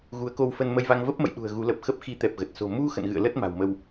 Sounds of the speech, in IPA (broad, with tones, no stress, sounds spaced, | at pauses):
ɣ u˨˦ ə̯ k o˧ w f ə˧ n m ə˧ j v a˧ ŋ v ə˦˥ p̚ m ə̰˧˨ j ɗ ṳ˨˩ ə̯ ɣ u˨˦ l ə˨˩ p̚ x ə˦˥ p̚ x i˨˦ t̪ ɛ˨˩ p̚ ɣ ə˨˩ t̚ s o̤˨˩ m u˧ x ə̰˧˨ n ɣ ɨ̰˧˨ ə̯ l ə˦˥ t̚ m a̤˨˩ w m ə˧ w